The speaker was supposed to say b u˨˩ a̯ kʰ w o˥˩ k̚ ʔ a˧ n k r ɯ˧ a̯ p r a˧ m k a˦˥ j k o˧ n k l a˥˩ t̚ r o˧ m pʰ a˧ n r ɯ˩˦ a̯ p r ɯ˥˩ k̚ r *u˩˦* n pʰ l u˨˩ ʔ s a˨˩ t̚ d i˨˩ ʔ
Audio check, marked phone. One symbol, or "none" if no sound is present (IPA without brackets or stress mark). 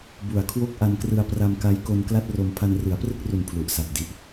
u˨˩